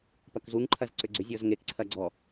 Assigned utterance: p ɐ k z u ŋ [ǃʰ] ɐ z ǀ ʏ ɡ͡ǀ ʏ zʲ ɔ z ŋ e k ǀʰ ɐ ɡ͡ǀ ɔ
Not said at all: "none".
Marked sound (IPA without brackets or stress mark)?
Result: ǃʰ